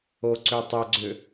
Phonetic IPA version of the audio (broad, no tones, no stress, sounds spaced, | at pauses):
o ǀ ø tˤ œ ɡ͡ǀ ʏ